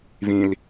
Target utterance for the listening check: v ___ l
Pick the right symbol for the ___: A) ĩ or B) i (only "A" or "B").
A